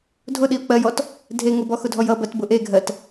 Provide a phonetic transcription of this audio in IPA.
dʱ ʊ ɗ i ʊ̯ k͡p ɜ j ɔ t | dʱ e ŋ ʊ b ɔ x ʊ dʱ ɔ j ʌ b ɜ t b ʊ ʔ e ɡʱ ɜ t

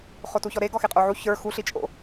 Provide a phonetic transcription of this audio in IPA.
χ o t u ç ɔ ɾ e ɡ ɔ x e qʼ o ʕ u ç ə˞ x u ɬ i t͡ʃʼ o̰

